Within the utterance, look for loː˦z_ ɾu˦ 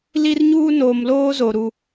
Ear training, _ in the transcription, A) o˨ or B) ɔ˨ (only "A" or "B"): A